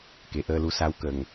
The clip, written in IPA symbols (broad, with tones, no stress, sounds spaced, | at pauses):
k e˨˩ ʔ əː˧ l u˧ s a˧˥ w k ə˨˩ ŋ